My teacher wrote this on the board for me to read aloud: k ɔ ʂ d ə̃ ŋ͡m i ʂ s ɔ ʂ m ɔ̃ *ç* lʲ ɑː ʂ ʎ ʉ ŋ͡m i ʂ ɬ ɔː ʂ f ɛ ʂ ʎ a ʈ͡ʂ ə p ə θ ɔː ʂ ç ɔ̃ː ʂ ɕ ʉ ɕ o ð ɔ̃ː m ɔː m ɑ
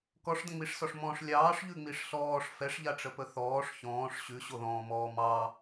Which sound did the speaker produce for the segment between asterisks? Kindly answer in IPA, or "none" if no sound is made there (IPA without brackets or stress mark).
ʂ